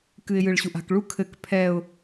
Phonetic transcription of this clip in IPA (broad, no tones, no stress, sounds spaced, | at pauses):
k ɨ ɪ̯ j ɨ ɭ ɕ u ʔ a̤ k ɭ u kʰ ɘ k pʰ ɛ ʊ̯